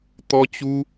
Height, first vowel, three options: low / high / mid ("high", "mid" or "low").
mid